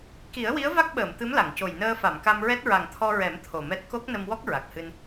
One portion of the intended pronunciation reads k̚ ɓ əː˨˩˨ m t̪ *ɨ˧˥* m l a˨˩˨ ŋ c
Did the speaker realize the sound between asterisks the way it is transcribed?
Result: yes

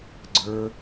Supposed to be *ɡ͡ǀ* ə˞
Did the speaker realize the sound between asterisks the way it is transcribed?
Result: yes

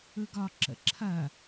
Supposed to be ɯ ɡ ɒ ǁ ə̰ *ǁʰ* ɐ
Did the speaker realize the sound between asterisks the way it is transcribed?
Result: yes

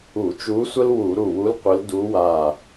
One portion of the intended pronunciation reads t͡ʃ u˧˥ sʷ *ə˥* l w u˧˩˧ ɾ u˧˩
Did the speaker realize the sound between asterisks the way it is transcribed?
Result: yes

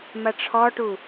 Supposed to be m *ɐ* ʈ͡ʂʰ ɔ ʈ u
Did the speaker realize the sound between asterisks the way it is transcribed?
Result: yes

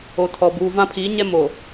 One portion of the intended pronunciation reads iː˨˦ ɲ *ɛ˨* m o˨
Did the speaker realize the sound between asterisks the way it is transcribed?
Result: no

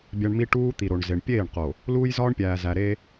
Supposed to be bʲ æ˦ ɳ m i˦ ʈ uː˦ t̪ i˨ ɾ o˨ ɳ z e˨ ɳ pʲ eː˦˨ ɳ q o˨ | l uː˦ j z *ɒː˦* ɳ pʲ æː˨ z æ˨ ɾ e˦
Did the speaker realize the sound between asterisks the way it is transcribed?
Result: yes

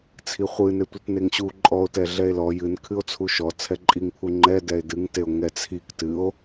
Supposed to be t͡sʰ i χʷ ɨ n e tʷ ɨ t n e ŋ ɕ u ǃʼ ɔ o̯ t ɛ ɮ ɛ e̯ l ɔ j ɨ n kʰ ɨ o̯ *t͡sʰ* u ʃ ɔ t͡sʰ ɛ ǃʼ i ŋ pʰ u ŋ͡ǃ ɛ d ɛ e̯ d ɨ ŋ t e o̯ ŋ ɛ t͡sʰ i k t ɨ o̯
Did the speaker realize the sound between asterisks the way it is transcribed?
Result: yes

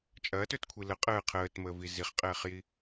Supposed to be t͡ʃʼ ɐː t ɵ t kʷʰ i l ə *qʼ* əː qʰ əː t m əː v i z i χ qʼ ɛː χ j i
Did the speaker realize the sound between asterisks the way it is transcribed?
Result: yes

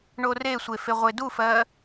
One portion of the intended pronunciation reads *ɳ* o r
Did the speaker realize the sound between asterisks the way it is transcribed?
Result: yes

